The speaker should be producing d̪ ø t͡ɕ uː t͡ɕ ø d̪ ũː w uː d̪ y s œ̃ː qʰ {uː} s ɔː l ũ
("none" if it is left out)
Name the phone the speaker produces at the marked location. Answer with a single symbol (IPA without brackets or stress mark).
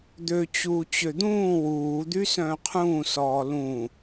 ũː